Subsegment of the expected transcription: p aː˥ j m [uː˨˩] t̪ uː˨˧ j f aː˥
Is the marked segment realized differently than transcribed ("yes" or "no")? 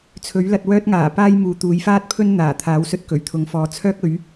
yes